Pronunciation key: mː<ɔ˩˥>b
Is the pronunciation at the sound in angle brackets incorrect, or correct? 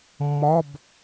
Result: incorrect